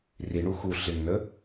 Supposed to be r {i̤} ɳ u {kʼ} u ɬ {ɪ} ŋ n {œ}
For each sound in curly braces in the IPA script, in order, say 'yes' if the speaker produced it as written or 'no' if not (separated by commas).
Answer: no, no, yes, no